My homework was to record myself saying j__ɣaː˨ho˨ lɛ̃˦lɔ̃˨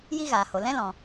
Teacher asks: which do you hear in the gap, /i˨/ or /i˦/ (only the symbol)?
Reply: i˦